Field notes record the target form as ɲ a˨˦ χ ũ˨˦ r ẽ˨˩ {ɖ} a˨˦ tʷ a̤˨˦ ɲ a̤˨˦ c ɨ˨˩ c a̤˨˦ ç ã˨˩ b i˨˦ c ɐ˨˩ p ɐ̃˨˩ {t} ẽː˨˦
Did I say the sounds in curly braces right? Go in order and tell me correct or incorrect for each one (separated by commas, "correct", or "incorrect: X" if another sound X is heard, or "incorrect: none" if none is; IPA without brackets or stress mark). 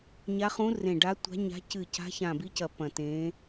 correct, correct